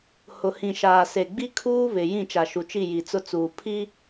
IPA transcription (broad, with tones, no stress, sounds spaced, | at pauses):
h ʊ˨ h ĩ˨ ʃ aː˨ s e˨ ɡ͡b i˦ kʰ uː˦ β ɪ˨ j ĩ˦˨ t͡ʃ a˨ ʃ u˨ t͡ʃ i˦˨ j i˨ t͡s ʊ˦ t͡s uː˨ pʰ i˦